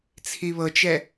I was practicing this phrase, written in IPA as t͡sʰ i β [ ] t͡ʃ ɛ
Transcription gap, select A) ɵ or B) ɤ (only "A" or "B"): B